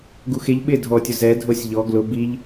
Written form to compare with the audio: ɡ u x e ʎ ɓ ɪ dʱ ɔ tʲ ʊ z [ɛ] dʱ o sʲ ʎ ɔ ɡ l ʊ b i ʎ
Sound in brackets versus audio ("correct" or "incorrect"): correct